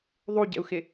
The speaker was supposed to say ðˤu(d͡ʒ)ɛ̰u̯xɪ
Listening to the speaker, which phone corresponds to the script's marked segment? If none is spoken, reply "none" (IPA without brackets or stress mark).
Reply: ɟ